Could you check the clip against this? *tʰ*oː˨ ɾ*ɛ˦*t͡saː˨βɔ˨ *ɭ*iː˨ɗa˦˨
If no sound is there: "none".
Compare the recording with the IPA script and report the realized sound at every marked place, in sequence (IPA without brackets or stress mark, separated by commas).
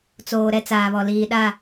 t͡s, ɛ˦, l